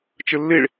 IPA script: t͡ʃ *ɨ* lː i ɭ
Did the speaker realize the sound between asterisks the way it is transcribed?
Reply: yes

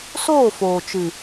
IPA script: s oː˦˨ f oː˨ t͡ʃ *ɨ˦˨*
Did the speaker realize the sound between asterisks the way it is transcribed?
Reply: no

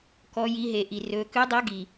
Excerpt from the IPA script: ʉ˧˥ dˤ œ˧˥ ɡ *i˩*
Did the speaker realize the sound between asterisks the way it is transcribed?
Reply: yes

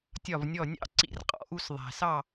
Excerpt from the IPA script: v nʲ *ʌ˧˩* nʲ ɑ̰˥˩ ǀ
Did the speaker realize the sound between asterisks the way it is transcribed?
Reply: no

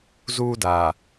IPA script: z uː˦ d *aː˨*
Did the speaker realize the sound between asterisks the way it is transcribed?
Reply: yes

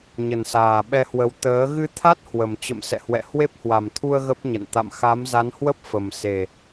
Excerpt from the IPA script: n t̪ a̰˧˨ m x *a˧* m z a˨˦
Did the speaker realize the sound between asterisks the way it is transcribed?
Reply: no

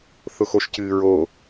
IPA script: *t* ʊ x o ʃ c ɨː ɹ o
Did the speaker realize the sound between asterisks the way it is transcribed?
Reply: no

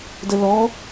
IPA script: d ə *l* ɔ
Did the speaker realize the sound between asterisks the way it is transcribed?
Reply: yes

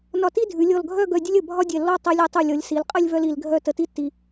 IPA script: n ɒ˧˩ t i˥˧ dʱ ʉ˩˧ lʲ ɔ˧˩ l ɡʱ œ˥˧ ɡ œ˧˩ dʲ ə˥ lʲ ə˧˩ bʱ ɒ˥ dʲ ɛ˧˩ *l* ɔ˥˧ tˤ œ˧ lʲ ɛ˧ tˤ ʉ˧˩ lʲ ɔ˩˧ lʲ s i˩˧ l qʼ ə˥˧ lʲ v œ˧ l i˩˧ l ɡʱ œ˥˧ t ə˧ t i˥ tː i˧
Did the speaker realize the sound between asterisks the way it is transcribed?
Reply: no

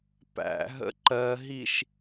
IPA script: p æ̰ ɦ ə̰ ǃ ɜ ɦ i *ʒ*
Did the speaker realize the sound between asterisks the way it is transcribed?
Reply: no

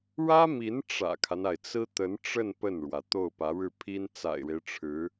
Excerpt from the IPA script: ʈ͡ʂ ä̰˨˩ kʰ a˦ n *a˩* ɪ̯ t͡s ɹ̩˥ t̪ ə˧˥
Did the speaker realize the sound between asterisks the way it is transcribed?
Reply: yes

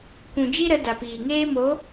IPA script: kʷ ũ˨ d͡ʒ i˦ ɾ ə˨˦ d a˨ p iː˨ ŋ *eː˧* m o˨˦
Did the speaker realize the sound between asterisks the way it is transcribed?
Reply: no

